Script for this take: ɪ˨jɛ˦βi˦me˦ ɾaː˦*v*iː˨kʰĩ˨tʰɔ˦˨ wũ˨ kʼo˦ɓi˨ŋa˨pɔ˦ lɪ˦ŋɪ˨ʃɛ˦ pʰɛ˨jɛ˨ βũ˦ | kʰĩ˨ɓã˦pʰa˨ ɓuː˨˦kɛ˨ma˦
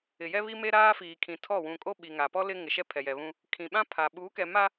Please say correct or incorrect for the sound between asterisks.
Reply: incorrect